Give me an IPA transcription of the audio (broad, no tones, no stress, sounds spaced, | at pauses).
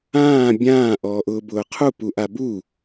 ãː bʲ ãː ʔ ɔː ʔ ʊː b ʊː qʰ u p u ʔ a b u